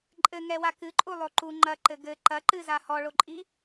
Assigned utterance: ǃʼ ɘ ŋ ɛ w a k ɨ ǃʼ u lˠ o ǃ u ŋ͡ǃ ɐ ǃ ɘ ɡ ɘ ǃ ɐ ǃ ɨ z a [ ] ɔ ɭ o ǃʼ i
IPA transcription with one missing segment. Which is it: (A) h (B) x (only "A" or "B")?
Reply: A